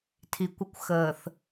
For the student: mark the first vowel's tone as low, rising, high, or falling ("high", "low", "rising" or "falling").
low